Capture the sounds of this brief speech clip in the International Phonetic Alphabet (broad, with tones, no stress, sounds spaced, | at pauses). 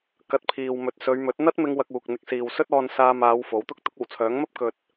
k ɐ˧ t̚ pʰ iː˨ w m ɵ˨ t̚ s ɵ˨˧ ɥ m ɵ˨˥ t̚ n̪ ɐ˥ t̚ m ɪ˧ ŋ w ɐ˧ k̚ uː˨ k̚ n̪ ɪ˧ k̚ s iː˨ w s ɵ˥ t̚ ɔː˧ n s aː˧ m aː˨˧ w f o˨˥ w t̪ ʊ˥ k̚ t̪ ʊ˨˥ k̚ o˨˩ w t͡sʰ œː˨˥ ŋ m ɐ˥ p̚ k ɵ˨ t̚